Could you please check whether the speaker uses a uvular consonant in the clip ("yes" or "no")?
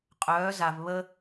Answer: yes